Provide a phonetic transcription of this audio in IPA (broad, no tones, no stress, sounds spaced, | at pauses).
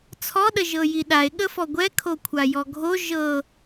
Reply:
t͡sʰ ɔ ɗ ə ʒ ɤ j i ɗ a e̯ ɠ ə f ɔ ɡʷ ɛ kʰ o kʷʰ a j ɔ ɡʱ o ʒ ɤ